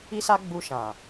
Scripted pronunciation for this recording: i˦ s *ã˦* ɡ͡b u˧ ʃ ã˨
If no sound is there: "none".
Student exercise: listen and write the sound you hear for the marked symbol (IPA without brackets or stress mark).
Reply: a˦